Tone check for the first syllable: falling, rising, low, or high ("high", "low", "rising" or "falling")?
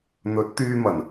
rising